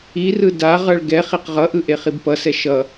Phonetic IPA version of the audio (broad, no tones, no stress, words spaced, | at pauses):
irɯ daʁʌɭ ɡɛ χiqʁʌʔɯ ʔeχibpʌsɛ ʃʌ